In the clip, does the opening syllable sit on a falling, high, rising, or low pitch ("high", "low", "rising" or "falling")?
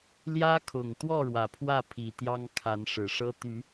high